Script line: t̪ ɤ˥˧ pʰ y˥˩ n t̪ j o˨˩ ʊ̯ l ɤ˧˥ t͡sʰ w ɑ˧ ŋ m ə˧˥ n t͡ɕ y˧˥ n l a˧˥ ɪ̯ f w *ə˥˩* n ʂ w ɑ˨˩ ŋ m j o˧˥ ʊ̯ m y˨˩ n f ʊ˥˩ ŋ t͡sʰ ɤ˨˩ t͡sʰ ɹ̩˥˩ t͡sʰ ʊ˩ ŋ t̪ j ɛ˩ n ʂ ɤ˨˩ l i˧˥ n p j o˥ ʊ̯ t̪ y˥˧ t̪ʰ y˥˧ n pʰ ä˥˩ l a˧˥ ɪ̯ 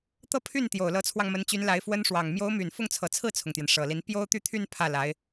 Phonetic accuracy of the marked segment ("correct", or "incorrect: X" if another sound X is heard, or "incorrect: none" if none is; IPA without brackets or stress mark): incorrect: ə˥